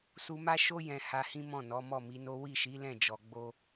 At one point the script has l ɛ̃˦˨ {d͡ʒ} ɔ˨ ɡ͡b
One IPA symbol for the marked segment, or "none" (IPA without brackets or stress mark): d͡ʒ